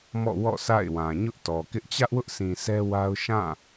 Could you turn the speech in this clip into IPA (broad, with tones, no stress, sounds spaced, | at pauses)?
m ɔ̰˦˨ w ɔ̰˦˨ s a̰˦˨ ɪ̯ w ã˨ ɲ ʊ˦ ʔ t ɔ˨ k ɪ˦ ʔ t͡ɕ ä˦ ʔ w ʊ˦ ʔ s ĩ˨ s ɛ˦ w a˦ ʊ̯ ʃ ã˦˨